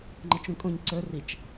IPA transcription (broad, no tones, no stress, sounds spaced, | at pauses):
ŋ͡ǃ ə t͡ʃ ũ kʼ õ ɲ ǀ ə˞ r i t͡ʃ